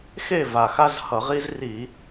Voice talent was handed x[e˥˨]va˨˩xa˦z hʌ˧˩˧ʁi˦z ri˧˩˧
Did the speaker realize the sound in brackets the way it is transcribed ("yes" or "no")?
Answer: yes